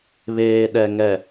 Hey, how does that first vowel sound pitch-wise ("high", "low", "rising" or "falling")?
low